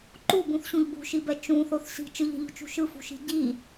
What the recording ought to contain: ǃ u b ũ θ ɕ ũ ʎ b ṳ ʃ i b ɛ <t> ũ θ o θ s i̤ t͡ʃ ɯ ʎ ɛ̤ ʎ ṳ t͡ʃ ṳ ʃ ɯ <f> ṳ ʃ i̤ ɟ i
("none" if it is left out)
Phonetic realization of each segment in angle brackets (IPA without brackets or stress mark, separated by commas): t͡ʃ, f